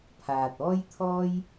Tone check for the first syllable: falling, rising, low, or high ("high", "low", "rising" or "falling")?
low